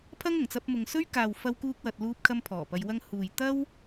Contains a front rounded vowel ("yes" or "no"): no